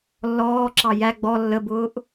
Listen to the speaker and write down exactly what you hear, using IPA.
lː ɔː ǁ ɑ j æ ɡ͡b ɔ lː ə b ʊː ʔ

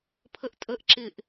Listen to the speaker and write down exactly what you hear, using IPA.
pʰ ə ʔ tʼ ə ʔ ǁ ɪ ʔ

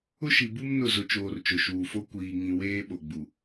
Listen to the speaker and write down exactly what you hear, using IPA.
ʊ˦ ʃ i˨ b u˦ m n ʊ˦˨ z ʊ˨ t͡ʃ oː˨ r t͡ʃ ʊ˨ ʃ uː˨ f o˦ kʷ iː˨ ŋ ĩ˨ w eː˦ ɓ o˨ ɡ͡b u˨

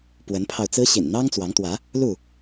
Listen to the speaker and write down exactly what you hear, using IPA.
p w ə˨˦ n pʰ ɑ˧ ʊ̯ t͡s ɹ̩˦ ɕ ḭ˨˩ n n̪ ɑ˦ ŋ t͡s w ɑ˨˦ ŋ t̪ w ä˨˦ | l u˥˨

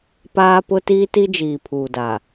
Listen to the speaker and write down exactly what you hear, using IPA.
p aː˦ p ʊ˦ t iː˦ t i˦ d͡ʒ iː˨ pʰ uː˨ d a˨

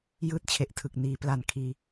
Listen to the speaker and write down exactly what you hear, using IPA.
j ɯː˥˩ t̚ t͡ɕʰ e˨˩ ʔ tʰ ɯ˨˩ k̚ n iː˩˦ p l a˨˩ n kʰ iː˧

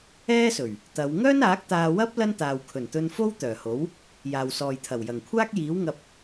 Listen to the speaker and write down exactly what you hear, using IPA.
ɛː˥ s ɵ˨˩ ɥ | t̪ ɐ˨˧ w ŋ œː˥ n aː˨˥ k̚ t̪ aː˧ w ɐ˥ p̚ l ɐ˥ n t̪ aː˨ w kʰ ɵ˨˩ n t̪ ɵ˧ n f o˥ w t̪ œː˨˩ h o˨˥ w | j aː˨ w s ɔː˨ j t̪ʰ ɐ˨˩ w j ɐ˨˩ ŋ kʷʰ aː˥ k̚ j iː˨˥ w ŋ ɐ˧ p̚

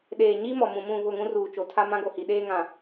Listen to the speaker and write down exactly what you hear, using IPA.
ɗ eː˨ ɲ i˦ m ɔ˨ m ũ˨ m ũ˦˨ β ʊ˦˨ ŋ ũ˦ r uː˨ t͡ʃ o˨ tʰ a˦ m ã˦ ɡ o˨ h i˨ ɗ eː˦ ŋ ã˨

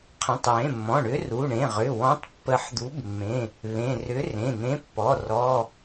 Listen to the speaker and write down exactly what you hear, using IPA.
qʰ ə̃˩˧˩ tˤ w ẽ˩˧˩ mː ɔ̃˩˧˩ ɳ ʏ˨˥ r u˩˧˩ ɳ ẽ˩˧˩ ʁ ʏ˩˧˩ w ɔ̃˨˥ tˤ pː ə˨˥ ħ d̪ u˨˥ b mː ẽ˩˧˩ | β ẽ˩˧˩ r ʏ˨˥ r ẽ˩˧˩ n̪ ẽ˨˥ pː ɔ˩˧˩ r ɔ˩˧˩

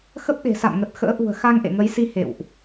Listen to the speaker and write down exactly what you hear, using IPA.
x ə˦˥ p̚ ɗ e̤˨˩ s a̰˧˨ m ŋ ə˨˩ t̚ x ə̰ː˧˥ ʔ ṳ˨˩ ə̯ x a˧ ŋ ʔ ḛ˧˨ ŋ ə˨˦ j s i˧ h ḛ˧˨ w ʔ

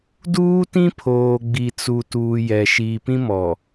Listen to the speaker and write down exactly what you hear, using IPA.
d uː˦ t ĩ˦ pʰ oː˨ ɡ͡b i˨ t͡s u˨ t uː˨ j ɛ˨ ʃ iː˨ p ĩ˦ m ɔ˨

